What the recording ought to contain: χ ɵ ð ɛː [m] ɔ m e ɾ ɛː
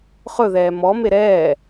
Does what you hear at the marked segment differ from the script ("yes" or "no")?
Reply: no